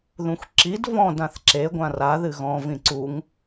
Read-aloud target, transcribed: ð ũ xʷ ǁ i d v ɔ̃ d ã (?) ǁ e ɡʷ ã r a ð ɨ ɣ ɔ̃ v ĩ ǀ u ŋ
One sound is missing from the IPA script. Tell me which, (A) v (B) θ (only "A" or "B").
B